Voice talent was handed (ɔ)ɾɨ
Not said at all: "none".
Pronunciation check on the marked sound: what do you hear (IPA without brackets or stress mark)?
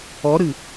ɔ